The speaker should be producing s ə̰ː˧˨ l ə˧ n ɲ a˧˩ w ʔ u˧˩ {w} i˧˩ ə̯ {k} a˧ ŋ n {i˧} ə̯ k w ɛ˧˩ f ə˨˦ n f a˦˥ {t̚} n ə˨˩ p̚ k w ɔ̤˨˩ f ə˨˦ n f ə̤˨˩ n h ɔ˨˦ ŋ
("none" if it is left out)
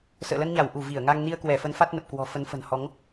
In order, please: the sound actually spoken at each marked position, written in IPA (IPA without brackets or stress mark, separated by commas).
v, ŋ, i˧, t̚